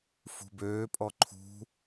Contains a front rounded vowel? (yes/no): yes